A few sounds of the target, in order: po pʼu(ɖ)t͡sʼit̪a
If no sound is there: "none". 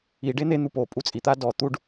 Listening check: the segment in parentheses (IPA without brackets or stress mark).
none